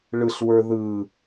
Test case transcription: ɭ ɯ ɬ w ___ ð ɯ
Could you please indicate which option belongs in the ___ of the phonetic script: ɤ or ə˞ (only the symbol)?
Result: ə˞